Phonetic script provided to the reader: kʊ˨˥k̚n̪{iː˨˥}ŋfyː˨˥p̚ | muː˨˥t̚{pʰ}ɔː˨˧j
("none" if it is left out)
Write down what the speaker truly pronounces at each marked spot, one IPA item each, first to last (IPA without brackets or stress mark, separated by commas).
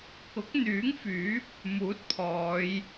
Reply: yː˨˥, pʰ